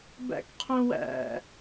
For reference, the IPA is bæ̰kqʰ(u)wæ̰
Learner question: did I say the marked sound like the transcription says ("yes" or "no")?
no